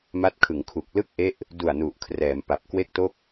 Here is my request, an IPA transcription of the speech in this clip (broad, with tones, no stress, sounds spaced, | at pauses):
m a˦˥ t̚ kʰ ɯ˩˦ ŋ kʰ u˨˩ k̚ l ɯ˥˩ k̚ ʔ e˦˥ ʔ | d u˨˩ a̯ n u˨˩ ʔ kʰ r ɛː˩˦ m p a˨˩ p̚ k w e˥˩ k̚ t o˥˩ k̚